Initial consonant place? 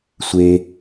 alveolar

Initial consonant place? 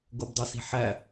velar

